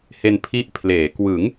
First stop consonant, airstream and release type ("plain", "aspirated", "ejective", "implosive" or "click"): aspirated